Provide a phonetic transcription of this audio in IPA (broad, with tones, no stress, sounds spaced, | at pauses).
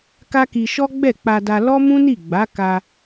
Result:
k a˦ k i˧ ʃ ɔ˦ ɡ͡b ɛ˦˨ k͡p a˧ d a˧ l ɔ˦ m ũ˦ n i˦˨ ɡ͡b a˨˦ k a˧